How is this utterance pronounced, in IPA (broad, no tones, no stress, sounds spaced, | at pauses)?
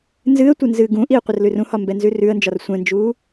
n z ɨ ə̯ tʷ ɘ n z ɨː ɡ ũ ʔ i ə̯ qʷ ə r l ʉ r ũ h ɒ m b ɛ n z ʉ r ʉ ə̯ n d͡ʒ ɒ r sʷ ɛ̃ n d͡ʒ uː